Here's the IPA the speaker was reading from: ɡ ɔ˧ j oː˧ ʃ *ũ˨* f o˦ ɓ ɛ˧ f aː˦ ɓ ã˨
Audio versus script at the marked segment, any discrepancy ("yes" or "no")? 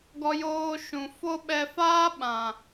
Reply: no